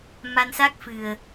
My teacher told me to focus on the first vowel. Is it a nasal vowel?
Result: no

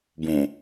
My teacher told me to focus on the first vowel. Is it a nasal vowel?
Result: yes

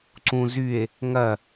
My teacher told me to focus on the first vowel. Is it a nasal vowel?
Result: yes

